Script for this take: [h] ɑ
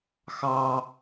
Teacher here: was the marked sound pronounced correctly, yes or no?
no